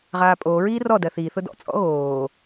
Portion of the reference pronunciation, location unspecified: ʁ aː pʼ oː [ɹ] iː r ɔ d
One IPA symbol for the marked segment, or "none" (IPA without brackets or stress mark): ɹ